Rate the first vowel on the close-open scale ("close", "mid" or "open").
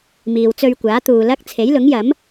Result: close